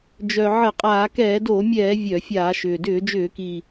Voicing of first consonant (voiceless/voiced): voiced